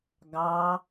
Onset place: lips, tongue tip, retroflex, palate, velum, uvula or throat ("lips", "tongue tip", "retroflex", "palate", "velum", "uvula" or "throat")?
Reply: velum